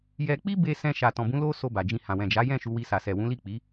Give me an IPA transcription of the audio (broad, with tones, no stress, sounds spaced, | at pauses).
j ɛ˧ k͡p i˦ b e˧ s ɛ̃˧ ʃ a˨ t ɔ̃˨ b ũ˨˦ l o˦ s o˧ b a˨ d͡ʒ ĩ˧ h ã˨ w ɛ̃˨ d͡ʒ a˨˦ j ɛ̃˦˨ ʃ u˧ w i˧ s a˨ s ɛ˨ w ũ˨˦ l i˦˨ k͡p i˨˦